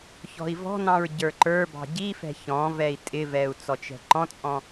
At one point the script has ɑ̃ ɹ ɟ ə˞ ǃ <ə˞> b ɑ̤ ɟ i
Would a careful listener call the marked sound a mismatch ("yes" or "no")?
no